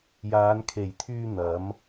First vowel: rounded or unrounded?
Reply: unrounded